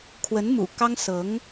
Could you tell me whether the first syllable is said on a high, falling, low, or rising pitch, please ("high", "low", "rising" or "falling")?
rising